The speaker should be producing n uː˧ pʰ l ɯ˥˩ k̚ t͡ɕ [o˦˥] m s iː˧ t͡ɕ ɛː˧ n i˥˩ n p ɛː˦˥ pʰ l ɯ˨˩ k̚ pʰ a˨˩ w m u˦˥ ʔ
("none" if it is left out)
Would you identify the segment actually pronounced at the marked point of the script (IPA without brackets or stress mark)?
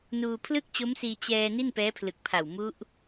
o˦˥